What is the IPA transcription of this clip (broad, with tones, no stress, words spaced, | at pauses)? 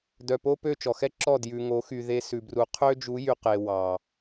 dœ˨po˦pø˦˨ t͡ʃɔ˨xɛ˦ǁɔ˦˨ djʉ˨ŋo˨˦xy˨ ðe˧ sʉ˨bru˨˦ qʰø˦d͡ʒu˨˦jy˨ qe˨ wɑ˨